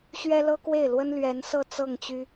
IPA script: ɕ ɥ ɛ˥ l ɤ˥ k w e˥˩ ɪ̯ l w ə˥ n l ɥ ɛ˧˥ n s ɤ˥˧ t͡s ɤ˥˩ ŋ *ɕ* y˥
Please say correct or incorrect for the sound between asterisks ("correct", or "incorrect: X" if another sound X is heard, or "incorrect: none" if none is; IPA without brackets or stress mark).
incorrect: t͡ɕ